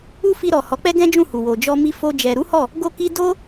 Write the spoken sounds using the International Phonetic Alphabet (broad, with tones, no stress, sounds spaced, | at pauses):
u˦ f i˧ ɾ ɔ˨ h ɔ˨˦ k͡p ɛ˦ ɡ ɛ̃˦ d͡ʒ ũ˦˨ h u˨ w o˨ d͡ʒ ɔ˧ m i˦ f o˦ d͡ʒ ɛ˧ ɾ u˦ h ɔ˦˨ | ɡ o˦ k i˦ d o˦